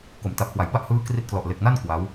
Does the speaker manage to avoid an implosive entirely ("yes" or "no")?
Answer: yes